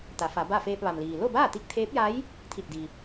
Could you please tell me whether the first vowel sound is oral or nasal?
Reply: oral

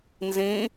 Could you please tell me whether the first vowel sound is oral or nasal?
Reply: nasal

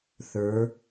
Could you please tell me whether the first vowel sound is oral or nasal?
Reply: oral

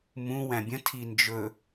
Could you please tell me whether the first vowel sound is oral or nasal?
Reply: nasal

